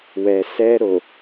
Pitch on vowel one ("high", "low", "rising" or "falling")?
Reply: low